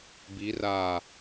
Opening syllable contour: rising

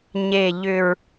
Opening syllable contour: low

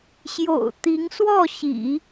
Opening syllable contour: low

